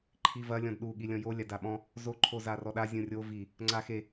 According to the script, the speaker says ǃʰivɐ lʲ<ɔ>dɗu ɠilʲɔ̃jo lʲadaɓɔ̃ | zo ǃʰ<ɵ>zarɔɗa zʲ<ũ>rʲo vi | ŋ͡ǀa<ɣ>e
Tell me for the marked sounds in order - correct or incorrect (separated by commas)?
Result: incorrect, incorrect, correct, incorrect